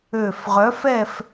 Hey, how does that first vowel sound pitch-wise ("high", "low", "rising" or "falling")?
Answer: low